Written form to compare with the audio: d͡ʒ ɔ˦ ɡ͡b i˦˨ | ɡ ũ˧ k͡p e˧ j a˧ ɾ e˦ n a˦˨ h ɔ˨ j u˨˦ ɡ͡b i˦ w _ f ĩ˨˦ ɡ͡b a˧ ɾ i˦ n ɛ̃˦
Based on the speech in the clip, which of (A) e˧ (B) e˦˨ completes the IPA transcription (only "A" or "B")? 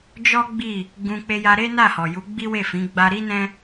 B